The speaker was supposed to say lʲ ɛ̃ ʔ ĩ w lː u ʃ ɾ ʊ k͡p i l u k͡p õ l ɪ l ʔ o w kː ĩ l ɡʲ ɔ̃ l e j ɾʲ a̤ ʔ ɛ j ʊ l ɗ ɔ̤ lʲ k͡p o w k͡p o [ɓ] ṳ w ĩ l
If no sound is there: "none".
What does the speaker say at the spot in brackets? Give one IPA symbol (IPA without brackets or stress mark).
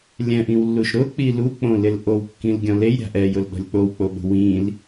ɓ